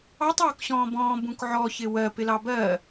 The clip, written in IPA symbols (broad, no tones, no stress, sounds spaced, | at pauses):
ɑ tˤ ɔː k ɕ ɔ̃ː b ɔ̃ː b ũ k ʕ ɔ ç ɪ w ɜ p ɪ l ɑ b ɜː